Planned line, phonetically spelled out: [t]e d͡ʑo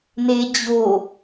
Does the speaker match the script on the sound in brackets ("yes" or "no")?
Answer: no